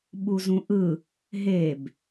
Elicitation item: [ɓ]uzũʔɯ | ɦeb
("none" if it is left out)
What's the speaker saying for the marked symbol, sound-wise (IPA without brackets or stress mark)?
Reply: ɓ